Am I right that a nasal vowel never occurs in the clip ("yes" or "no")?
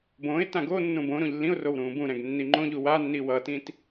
no